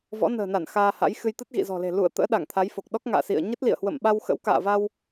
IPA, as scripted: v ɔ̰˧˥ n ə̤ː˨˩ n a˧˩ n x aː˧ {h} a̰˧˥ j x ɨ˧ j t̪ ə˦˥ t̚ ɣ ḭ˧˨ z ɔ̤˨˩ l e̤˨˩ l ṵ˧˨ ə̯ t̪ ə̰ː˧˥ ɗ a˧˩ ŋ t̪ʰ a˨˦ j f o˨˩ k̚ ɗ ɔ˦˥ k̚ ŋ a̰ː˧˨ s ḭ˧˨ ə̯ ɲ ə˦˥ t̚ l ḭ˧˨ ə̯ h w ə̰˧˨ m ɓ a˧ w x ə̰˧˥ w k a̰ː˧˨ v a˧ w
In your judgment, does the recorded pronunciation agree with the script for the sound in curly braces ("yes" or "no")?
yes